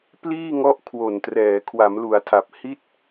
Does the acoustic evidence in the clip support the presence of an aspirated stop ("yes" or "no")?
yes